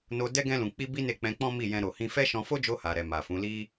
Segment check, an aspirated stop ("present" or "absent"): absent